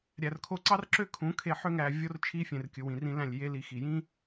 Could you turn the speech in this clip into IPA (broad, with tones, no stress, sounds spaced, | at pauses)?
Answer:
ɾʲ æ˨ r kʰ o˧ ǀ ɑ˦ r ǁ ø˧ kʰ ũ˨˦ kʰ e˧ ħ ø˦ ŋ æ˧ vʲ o˦ r t͡ʃʰ i˦ fʲ ẽ˨ r kʲ ɯ˨ w ĩ˨ r ĩ˧ l æ̃˦˨ lʲ j e˦ l i˧ x i˧ j ĩ˦